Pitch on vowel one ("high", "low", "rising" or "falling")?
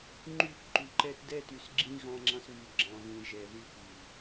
falling